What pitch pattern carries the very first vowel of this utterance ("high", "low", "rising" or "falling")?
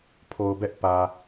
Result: low